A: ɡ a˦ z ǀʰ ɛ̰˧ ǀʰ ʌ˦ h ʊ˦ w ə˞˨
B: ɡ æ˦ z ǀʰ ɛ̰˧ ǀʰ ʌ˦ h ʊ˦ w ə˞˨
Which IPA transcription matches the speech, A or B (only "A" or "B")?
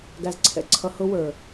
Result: B